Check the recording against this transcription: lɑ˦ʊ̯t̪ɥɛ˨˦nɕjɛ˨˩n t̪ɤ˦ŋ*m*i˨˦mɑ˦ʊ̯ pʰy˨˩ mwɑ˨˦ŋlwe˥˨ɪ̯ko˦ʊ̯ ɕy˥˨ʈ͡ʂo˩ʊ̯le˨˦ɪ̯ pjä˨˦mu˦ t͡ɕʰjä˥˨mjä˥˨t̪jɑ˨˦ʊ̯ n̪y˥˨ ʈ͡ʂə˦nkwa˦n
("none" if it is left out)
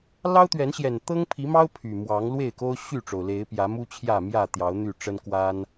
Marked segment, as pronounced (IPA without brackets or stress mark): pʰ